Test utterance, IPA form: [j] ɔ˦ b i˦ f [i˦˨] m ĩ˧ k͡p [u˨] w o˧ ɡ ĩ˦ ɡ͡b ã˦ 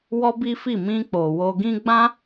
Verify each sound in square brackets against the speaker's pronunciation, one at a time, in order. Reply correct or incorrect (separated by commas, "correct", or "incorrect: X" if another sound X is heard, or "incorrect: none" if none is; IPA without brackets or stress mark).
incorrect: w, correct, incorrect: o˨